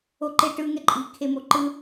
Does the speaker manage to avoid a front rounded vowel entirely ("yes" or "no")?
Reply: yes